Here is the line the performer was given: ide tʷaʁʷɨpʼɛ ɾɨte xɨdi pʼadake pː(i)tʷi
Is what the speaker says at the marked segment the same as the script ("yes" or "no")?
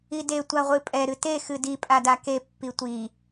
yes